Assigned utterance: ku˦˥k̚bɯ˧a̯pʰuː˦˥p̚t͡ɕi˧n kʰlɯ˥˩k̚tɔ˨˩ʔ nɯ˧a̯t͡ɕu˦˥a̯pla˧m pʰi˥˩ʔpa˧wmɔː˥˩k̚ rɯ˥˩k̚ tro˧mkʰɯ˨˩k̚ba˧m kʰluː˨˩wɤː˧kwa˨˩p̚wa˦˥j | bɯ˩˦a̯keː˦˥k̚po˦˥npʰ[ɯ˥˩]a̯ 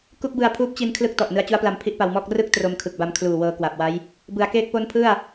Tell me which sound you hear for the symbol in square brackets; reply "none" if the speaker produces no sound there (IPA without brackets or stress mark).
ɯ˥˩